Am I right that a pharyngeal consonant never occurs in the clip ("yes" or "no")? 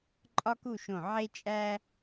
no